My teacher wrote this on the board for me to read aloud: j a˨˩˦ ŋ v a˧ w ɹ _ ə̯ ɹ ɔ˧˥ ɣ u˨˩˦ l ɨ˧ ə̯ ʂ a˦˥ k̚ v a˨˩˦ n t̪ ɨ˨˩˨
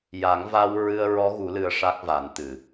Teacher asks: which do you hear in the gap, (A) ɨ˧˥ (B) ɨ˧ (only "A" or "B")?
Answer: B